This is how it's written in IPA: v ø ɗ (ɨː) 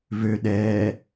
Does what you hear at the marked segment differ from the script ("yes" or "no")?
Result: yes